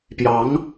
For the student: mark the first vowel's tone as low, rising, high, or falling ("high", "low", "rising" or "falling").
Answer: rising